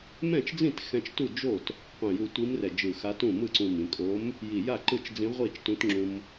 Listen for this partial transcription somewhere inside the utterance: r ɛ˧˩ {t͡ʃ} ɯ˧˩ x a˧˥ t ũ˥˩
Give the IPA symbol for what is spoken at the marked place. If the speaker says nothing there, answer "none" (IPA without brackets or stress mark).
d͡ʒ